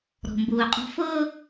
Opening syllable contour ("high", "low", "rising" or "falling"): low